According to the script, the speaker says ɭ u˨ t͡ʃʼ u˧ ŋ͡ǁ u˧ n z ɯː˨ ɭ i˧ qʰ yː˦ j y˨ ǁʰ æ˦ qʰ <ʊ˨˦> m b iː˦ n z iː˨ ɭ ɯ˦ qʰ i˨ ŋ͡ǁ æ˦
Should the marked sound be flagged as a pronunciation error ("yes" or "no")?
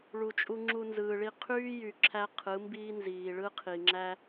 yes